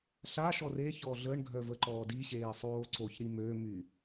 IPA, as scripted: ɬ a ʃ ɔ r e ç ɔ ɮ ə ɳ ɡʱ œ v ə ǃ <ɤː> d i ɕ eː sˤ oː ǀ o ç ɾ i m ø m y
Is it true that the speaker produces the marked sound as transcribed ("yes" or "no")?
no